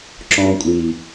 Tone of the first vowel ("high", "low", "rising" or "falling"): high